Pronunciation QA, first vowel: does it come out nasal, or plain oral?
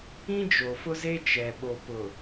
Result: nasal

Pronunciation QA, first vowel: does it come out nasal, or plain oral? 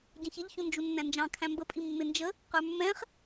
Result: nasal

